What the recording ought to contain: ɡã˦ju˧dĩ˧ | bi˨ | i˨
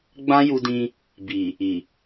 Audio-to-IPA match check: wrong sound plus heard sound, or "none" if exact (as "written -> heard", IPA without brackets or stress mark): ɡ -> ɡ͡b